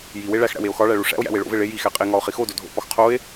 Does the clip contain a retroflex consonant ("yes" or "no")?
yes